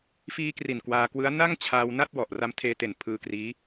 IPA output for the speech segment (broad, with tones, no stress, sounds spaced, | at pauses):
f iː˧ k r i˨˩ n k w aː˧ k w ɯ˦˥ a̯ n a˥˩ ŋ t͡ɕʰ aː˧ w n a˥˩ t̚ w ɔ˨˩ ʔ r a˧ m tʰ eː˧ t e˨˩ n pʰ ɯː˧ k r iː˦˥